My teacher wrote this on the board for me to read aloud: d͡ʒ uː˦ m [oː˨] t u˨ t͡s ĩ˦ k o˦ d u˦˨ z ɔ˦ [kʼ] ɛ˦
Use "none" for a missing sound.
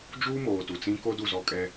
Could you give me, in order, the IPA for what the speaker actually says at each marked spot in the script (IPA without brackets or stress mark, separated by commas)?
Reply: oː˨, kʼ